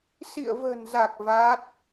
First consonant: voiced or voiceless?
voiceless